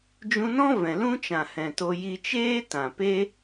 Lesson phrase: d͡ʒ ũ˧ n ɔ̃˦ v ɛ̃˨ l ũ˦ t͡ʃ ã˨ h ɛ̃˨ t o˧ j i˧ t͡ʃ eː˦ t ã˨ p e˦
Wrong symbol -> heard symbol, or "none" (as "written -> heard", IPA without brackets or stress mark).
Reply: none